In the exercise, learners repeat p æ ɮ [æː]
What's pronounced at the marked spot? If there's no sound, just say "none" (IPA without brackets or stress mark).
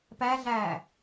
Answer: æː